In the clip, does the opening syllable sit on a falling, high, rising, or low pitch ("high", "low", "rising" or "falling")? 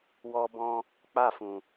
high